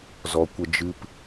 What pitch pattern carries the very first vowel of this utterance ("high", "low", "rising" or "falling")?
low